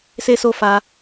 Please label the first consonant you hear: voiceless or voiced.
voiceless